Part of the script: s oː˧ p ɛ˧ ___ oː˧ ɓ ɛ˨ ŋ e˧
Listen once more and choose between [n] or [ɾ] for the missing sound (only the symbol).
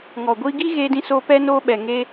n